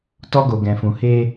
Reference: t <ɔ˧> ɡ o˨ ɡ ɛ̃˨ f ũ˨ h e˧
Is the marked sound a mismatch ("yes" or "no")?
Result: no